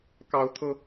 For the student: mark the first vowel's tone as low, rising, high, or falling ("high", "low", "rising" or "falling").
high